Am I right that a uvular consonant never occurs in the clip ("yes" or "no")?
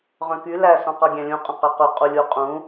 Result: no